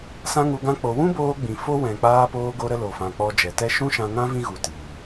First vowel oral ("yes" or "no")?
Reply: no